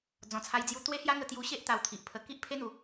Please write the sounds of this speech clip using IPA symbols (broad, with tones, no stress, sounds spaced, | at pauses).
d͡z ɔ̃˨˩ t͡sʰ a˧ j d͡z j u˧ t̪ w e˦ h j a˦ ŋ ə˧ t̪ j u˧ ɕ e˦ ʔ t̪ a˧ w t̪ʰ i˨ ʔ pʰ ə˧ k i˦ ʔ pʰ e˦ n̪ u˨˦